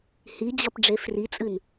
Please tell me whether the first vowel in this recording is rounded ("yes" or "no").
no